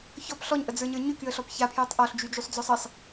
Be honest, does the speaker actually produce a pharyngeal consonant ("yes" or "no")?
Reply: no